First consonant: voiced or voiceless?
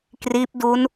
voiceless